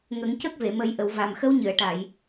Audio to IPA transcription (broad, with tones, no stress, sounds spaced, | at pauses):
ŋ ə˨˩˦ ŋ c ə˦˥ k̚ v e˨˩˨ m ə˨˩˦ j ʔ ə˨˩˨ w v a˨˩ m x ə˧˥ w ɲ ɨ˨˩˨ ə̯ ʈ a˨˩˨ j